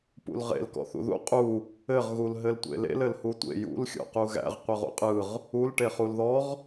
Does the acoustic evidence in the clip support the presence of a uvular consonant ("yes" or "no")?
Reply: yes